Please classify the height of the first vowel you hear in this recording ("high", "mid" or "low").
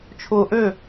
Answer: high